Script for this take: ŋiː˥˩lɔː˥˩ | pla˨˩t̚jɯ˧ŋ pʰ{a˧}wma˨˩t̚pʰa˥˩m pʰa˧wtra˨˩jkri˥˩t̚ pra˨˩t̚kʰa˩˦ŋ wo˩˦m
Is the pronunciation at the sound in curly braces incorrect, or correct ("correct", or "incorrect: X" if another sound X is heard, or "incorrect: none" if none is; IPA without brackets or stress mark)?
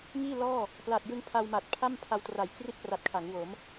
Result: correct